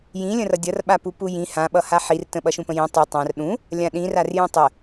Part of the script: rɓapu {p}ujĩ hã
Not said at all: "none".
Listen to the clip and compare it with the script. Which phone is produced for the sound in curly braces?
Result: p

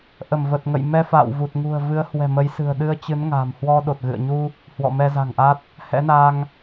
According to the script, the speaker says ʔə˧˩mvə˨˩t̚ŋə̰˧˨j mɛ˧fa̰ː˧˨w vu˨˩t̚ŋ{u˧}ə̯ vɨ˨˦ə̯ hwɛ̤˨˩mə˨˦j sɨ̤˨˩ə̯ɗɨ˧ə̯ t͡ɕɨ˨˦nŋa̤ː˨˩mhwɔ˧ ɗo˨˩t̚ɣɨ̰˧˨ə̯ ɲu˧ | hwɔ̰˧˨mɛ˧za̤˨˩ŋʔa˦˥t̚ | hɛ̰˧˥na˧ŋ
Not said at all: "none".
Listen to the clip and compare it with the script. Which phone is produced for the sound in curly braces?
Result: ṳ˨˩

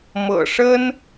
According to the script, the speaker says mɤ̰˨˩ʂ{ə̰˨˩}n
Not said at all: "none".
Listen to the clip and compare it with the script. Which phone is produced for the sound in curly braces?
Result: ə˦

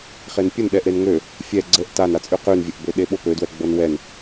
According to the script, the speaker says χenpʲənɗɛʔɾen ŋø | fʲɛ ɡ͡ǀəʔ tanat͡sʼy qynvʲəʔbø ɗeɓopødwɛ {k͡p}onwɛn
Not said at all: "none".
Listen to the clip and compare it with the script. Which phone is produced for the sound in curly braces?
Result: ɡ͡b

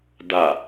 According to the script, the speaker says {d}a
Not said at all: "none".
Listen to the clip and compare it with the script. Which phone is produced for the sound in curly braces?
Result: d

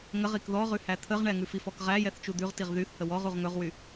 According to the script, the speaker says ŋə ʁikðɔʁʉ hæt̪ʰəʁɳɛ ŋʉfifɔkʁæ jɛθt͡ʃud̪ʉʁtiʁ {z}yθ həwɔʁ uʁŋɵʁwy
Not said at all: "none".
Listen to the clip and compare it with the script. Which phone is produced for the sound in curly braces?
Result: ð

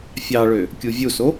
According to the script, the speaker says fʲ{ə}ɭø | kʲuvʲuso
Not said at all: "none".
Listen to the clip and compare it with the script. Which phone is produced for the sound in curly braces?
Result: ɑ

